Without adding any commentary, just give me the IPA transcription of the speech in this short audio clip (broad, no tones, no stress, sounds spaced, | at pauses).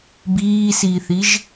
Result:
b iː s iː θ i ʒ